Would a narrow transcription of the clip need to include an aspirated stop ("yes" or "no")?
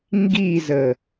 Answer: no